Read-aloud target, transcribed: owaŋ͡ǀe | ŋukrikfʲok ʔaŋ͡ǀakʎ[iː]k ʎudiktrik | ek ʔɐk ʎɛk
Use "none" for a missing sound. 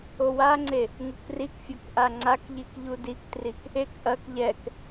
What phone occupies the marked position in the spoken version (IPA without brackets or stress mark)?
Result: i